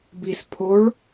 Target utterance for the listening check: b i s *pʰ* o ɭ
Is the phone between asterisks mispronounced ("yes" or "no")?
no